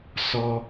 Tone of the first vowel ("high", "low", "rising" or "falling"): high